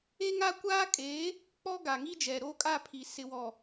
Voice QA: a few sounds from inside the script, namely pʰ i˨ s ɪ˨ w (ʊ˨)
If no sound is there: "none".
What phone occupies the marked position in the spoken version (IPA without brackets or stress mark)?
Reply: ɔ˨